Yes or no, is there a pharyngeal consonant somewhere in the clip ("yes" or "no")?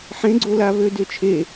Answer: yes